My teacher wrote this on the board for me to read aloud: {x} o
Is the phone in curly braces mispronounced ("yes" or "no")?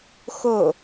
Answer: no